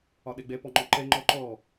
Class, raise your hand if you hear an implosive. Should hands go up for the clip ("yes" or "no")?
yes